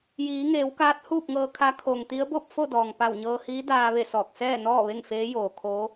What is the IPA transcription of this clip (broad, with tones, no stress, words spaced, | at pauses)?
jiː˩˧ŋeː˩˧w kaː˧˥t̚huː˥˨p̚ŋɤː˧kʰa˧˥ kʰo˩ŋt̪i˧˥ə̯ bo˥˨p̚fo˥˨dɔː˩ŋ pa˧˩wɲɤː˧hiː˧˥daː˧ ʋe˥˨sɔː˧˩k̚ sɛː˥˨nɔː˥˨ ʋe˥˨ŋfeː˧˥joː˩kʰoː˧˥